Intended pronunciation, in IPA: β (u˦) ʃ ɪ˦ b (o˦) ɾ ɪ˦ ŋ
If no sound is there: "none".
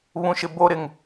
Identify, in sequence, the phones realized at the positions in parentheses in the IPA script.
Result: ũ˦, o˦

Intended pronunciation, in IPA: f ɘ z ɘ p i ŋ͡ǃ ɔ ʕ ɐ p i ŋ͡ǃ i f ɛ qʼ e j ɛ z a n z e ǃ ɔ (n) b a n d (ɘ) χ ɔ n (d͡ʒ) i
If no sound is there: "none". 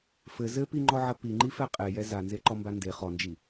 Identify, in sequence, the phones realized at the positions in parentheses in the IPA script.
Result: m, e, d͡ʒ

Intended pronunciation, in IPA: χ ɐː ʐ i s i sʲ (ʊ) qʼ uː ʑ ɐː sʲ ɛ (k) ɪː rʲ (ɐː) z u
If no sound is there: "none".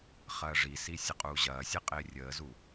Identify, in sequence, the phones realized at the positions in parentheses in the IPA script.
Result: ə, qʼ, əː

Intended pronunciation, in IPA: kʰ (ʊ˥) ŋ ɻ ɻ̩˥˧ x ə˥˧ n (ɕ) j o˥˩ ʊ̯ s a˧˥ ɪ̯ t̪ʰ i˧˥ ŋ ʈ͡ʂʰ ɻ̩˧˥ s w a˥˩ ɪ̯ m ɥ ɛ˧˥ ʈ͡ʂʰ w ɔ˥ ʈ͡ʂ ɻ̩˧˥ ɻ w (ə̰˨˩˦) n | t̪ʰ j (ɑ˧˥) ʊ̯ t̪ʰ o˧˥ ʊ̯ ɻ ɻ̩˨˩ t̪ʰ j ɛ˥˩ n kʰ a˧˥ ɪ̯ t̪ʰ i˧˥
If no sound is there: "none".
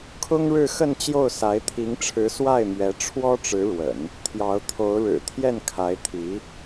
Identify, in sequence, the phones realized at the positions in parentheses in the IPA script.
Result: ʊ˥, t͡ɕ, ə̰˨˩˦, ɑ˧˥

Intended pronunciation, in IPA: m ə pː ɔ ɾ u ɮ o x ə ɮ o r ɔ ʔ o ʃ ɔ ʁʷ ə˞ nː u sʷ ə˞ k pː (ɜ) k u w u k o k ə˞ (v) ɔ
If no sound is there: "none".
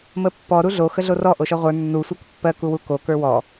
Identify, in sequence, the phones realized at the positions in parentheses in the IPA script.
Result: ɜ, w

